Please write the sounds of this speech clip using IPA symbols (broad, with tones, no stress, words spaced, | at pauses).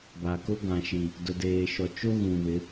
ba˨ko˦ ɡã˨ʃi˨ | dʊ˨deː˨ʃɔ˨ t͡ʃo˦ ɣũ˨ βɪ˨˦